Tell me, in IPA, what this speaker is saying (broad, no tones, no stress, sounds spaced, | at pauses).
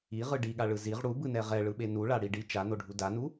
i ʁ ɯ ɖ i ɠ a ɭ ɯ z i ʁ ɽ u b ɯ n ɛ ʁ ɛ ɭ ɯ ɓ e n u ɭ a ɽ i ɖ i t͡ʃ a n o ɖʱ u d a n u